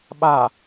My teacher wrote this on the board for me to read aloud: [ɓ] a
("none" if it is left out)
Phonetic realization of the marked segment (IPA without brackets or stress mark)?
ɓ